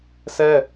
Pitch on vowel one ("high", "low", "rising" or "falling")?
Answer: high